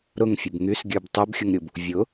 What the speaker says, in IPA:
ɾʊŋfʲʊb ŋysɡʲə˞b tˤybxʲʊŋɾʲub | vʲʊ

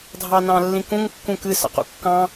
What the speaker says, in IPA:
dʱɑnɑ̃lːĩkũŋ kːũkɨ sɑ̰qṵkːɑ̃

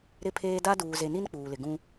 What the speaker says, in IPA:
ɾɪ˦pʰeː˦ da˦ duː˨ze˨ni˦n k͡puː˨lɪ˨ ɡũ˦

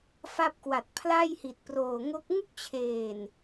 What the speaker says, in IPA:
fa˦˥p̚kwa˨˩t̚ pʰla˥˩jhi˨˩t̚proː˨˩ ŋo˦˥k̚ ŋu˥˩k̚t͡ɕʰeː˨˩n

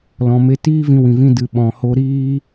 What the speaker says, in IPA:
lɔ̃˨ me˧tiː˦vĩ˧ wĩ˨vĩ˧ dɨ˨ɓɔ̃˨ho˧ ɾiː˦

